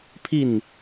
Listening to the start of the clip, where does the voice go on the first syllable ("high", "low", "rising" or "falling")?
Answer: falling